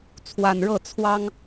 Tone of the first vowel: low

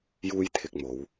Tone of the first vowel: high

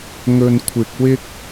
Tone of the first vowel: low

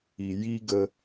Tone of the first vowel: low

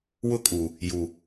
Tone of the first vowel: high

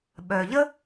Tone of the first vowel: low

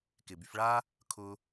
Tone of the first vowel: low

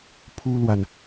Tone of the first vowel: high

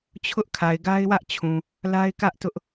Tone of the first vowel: high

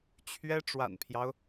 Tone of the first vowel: high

